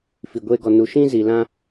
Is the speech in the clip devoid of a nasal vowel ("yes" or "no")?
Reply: no